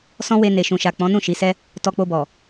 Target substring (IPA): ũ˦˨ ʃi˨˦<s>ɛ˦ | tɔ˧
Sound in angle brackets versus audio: correct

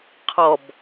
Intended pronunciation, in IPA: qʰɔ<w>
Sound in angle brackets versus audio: incorrect: b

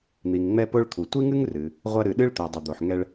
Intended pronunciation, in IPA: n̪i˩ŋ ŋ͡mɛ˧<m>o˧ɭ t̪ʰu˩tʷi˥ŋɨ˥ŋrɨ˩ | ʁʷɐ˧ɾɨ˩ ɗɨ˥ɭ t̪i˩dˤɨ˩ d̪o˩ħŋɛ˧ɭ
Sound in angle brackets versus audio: incorrect: p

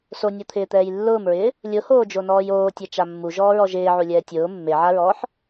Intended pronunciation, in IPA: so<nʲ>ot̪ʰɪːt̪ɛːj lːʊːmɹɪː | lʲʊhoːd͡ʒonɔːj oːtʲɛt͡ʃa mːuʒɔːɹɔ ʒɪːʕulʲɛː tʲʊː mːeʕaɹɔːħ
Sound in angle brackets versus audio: correct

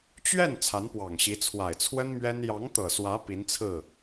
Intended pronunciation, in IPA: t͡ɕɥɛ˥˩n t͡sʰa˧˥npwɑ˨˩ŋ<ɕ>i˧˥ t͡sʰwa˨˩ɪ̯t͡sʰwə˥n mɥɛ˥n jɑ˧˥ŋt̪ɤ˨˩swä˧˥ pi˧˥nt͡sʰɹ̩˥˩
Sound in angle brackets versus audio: correct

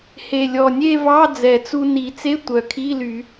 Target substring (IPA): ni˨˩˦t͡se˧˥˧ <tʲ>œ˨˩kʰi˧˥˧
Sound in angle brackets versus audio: incorrect: tʷ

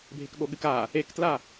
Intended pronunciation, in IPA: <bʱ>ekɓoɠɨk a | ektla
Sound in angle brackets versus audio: correct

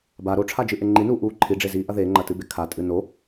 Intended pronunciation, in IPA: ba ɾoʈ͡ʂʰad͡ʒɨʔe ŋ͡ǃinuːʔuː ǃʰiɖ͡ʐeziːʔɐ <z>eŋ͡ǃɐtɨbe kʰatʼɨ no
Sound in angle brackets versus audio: incorrect: ð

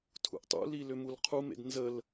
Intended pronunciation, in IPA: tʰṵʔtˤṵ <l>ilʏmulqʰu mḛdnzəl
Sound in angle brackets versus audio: correct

